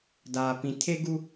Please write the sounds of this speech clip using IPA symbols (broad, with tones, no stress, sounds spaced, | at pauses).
d aː˨ p ĩ˨ tʰ e˦ ɡ u˦